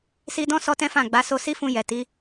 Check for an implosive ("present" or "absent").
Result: absent